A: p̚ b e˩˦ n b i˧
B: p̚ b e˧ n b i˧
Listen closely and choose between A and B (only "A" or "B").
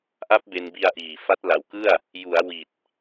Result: B